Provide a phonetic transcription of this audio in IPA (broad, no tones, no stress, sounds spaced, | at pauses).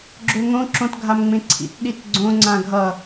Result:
ɡ͡ǁ ø ŋ õ ǁ õ t ɡʱ a m ŋ͡m ẽ ǀʰ ḭ t ɗ i t ɡ͡ǀ õ ŋ͡ǀ ã ɡʱ ʌ